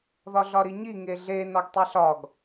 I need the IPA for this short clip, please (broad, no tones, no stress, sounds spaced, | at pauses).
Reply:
ð ɒ ɮ ɒ ɾ i ɲ i ŋ e ɮ e n ɒ ɡ tˤ i ɬ ɒ ɡ